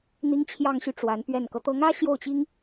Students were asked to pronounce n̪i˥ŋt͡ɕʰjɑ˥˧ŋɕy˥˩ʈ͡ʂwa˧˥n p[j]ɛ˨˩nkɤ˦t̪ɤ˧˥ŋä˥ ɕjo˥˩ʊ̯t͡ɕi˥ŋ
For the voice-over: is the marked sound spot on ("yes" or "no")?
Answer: no